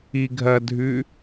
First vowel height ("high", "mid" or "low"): high